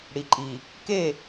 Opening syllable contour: low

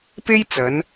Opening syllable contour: high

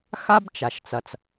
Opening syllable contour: high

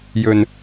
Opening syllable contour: low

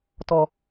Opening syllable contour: low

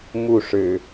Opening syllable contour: falling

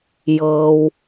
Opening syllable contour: low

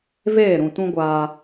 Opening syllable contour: falling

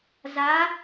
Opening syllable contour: rising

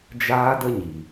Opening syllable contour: high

